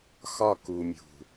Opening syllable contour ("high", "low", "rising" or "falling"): falling